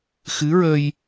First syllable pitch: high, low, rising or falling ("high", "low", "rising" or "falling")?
rising